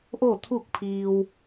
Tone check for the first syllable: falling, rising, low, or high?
falling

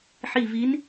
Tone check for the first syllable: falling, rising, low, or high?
falling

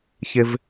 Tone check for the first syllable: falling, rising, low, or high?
high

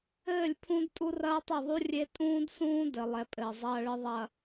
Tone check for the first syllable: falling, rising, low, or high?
falling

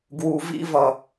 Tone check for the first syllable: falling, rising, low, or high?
low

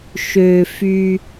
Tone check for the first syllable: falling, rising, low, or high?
low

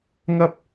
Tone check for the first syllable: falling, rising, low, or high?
high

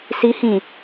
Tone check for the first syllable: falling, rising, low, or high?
rising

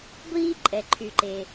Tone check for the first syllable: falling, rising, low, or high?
high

